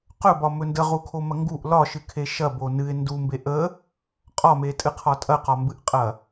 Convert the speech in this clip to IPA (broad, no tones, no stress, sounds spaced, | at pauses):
q ɵ b ɒ m ɵ n d ə ʁ u kʰ o m ɐ ŋ ɡ u ʔ l ɒ ʃ ɨ kʰ e ʃ ɐ b o n ɨ ɪ̯ n d u m b e ʔ ə | qʼ ɒ m e tʼ ɨ qʰ ɒ tʼ ɐ q ɒ m b ɨ ʔ qʼ ɐ